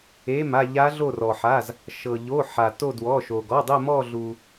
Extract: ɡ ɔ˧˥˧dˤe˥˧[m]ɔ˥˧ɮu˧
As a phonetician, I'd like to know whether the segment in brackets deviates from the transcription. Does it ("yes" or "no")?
no